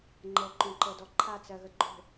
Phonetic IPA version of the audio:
ŋ͡ǃ ɤ ǃ õ ǃ ɤ d ɔ ǃʰ a t͡s ɜ ɣ ə ɡ͡ǃ o̤

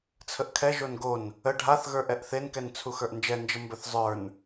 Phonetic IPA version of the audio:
t͡sʰ ə ʔ kʰ ɛ ʒ o n ɡ o n | ə ɖʱ a θ ɣ ə˞ ʔ ɛ ʔ θ e n k ɛ n t͡sʰ u x ə˞ ʔ n d͡ʒ ɛ n d͡ʒ ə m b ɵ θ zˤ ə˞ n

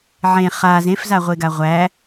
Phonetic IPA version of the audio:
ʕ ẽ χ a z ẽ f z a ʁʷ e ɡ a ʁʷ æ

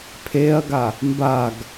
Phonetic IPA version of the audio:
pʰ e ɐ̯ ɡ a | m b a ɡ

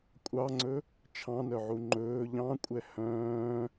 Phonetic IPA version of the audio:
kʷʼ ɑ ŋ͡ǀ ɵ | t͡ʃʰ ɑ̃ n œ ʕ u ŋ͡ǃ ɵː ʎ ɑ̃ kʷʼ ɛ h œ̃ː

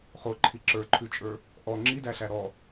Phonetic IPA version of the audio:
χ o ǃʰ i ǁ ə˞ ǃʰ ʉ t͡ʃʼ ə˞ | ʔ ɔ ŋ͡ǁ i d æ ɬ æ ɾ ɔ

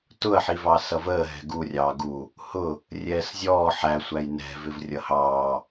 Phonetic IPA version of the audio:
t ʊ ɐ̯ ħ i v ɑ s ʌ v əː ɦ ɛ̤ ɡ u rʲ ɑː ɡ u | h ʊ | rʲ ɛː s zʲ ɔː ħ æ sʷ æ j n ɛ̤ v ɪ v rʲ ʌ h ɑː

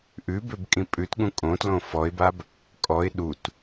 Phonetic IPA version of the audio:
ʔ ʉ b ø b kʼ ĩ pʼ ʉ t ɠ ũ kʼ õ t l õ f ɔ ɪ̯ b a b | kʼ ɔ ɪ̯ ɗ u t

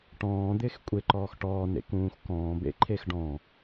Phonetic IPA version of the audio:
ʈ ɔ̃ː d̪ ɪː x kʷʼ e ǃ ɔː x ʈ ɔː n ḛ k ũː x k ɔ̃ː b ḛ ǃʰ e x ɖ ɔ̃

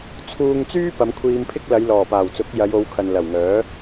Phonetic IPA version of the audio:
t͡sʰ uː˧ ŋ t͡s yː˥ p ɐ˨˧ m kʷʰ iː˧ m pʰ ɪ˥ k̚ l ɐ˨˧ j l ɔː˨˩ p aː˨˩ w t͡s ʊ˨˥ k̚ j ɐ˨˧ j o˨˧ w kʰ ɐ˨ n l ɐ˨˩ w ŋ œː˨˥

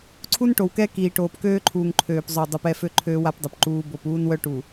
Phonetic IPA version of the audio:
ǀʰ u˦ n ʈ o˨ w k ɛ˦ k iː˨ ʈ oː˨ p k øː˦ ǃʰ uː˨ ŋ ǃʰ øː˨ p zˤ ø˨ dˤ u˨ p ɛ˦˨ f ø˦ ǃʰ øː˦ w a˦ p dˤ ø˨ p ǃ uː˦ b o˦˨ p uː˦ n w œ˦ ʈ u˨

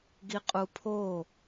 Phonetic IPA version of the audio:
ɡ i qʼ u pʰ o

